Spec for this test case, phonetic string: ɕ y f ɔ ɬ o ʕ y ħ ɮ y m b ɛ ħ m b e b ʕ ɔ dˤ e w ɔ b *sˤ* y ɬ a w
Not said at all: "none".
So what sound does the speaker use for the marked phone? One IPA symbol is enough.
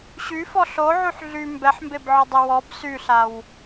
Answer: s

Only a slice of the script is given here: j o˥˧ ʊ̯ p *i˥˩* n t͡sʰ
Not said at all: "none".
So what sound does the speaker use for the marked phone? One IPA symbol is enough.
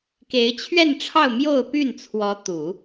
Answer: y˥˩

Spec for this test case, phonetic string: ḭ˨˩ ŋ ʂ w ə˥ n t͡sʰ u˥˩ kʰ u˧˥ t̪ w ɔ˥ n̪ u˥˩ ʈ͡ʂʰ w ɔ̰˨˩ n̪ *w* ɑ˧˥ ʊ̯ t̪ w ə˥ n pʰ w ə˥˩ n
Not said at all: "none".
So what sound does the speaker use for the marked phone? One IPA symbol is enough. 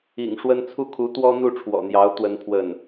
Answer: j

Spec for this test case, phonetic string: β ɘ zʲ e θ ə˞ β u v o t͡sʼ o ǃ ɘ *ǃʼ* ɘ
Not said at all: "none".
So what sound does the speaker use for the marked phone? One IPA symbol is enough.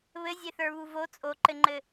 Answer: ŋ͡ǃ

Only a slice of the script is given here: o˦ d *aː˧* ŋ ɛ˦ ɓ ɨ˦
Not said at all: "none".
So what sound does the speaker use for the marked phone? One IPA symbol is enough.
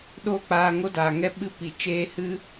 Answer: aː˨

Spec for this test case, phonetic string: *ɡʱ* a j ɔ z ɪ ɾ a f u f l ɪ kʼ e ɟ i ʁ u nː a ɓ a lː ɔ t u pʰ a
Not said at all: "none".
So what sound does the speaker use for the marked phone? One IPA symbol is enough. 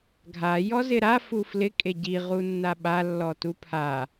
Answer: ɡʱ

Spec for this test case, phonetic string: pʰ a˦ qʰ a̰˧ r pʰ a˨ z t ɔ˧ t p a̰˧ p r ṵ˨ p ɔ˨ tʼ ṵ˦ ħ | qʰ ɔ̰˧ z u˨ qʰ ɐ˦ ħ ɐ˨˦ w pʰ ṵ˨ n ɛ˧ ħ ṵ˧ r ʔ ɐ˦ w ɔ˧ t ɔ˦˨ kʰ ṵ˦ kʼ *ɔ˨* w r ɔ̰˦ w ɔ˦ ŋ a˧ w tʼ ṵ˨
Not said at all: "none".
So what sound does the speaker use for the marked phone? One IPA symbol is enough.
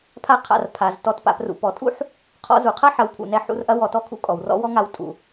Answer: ɔ˨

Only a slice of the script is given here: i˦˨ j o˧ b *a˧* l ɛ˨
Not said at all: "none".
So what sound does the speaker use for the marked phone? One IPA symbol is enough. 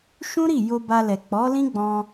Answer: a˧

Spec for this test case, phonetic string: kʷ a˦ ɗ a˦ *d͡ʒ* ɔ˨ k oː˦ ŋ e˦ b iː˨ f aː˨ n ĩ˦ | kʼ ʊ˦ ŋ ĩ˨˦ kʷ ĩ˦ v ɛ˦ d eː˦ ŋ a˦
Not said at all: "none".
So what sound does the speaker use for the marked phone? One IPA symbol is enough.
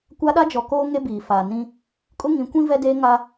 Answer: d͡ʒ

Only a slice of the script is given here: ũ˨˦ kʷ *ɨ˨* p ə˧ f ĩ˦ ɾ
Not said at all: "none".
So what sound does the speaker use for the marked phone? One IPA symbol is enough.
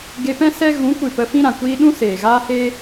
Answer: ɨ˨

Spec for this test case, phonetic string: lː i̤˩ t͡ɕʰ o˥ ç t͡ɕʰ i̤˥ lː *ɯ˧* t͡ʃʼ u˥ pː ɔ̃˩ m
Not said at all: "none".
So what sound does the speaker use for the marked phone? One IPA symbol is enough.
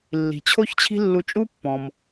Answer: u˧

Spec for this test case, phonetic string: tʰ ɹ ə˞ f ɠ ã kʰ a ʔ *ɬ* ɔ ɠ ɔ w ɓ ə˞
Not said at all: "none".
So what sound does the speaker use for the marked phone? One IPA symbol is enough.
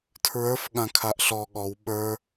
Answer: ɬ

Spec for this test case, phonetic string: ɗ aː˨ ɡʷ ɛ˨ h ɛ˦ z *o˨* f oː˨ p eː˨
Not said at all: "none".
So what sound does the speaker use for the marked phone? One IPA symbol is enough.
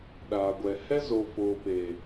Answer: o˨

